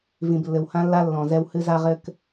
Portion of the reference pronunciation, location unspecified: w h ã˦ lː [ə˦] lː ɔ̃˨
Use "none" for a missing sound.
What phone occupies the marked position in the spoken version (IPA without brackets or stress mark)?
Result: a˦